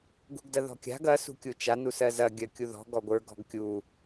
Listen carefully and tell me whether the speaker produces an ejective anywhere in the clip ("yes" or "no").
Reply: no